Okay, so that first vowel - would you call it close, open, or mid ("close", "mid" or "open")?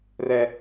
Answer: mid